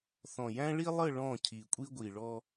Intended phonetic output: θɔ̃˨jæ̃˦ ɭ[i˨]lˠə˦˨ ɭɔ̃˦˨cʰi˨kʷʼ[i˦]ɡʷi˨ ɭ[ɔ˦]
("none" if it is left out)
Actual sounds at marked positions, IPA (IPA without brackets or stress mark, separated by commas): i˦, i˦, ɔ˦